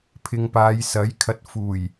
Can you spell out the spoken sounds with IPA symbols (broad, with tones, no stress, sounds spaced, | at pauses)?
pʰ ɪ˧ ŋ p aː˨˧ j s ɐ˨˥ j kʰ ɐ˧ t̚ f uː˨˩ j